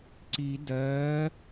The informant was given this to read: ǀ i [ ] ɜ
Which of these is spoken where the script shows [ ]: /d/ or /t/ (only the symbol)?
d